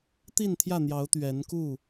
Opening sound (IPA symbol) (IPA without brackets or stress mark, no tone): t̪